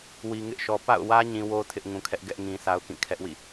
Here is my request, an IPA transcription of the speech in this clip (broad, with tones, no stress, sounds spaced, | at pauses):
w i˨ ŋ ɪ˦ ʔ ʃ ɔ˨ p a̰˦˨ ʊ̯ w ä˦ ɲ ĩ˨ w o˦ tʰ ɪ˦ ʔ ŋ ũ˨ kʰ ɛ˦ ʔ ɡ ɛ˦ ʔ ŋ ĩ˦ sʰ a˦ ʊ̯ k ĩ˦˨ kʰ ɛ˦ ʔ w ḭ˦˨